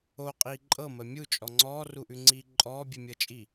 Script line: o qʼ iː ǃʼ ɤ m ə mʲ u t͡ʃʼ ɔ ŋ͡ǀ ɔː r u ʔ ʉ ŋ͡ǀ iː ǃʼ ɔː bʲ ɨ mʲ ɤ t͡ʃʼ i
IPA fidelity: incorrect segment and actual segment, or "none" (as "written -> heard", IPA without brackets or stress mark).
none